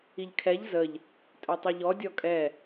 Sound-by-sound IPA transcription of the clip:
iʎkʰɛʎ zəʎ | tʼœtˤɛʎɔ dʲɔkʼɛ

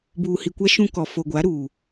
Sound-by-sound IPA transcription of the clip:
buː˨hi˨kʷa˦ ʃũ˦kɔ˨ fo˨ɡʷa˨˦ ɾuː˨

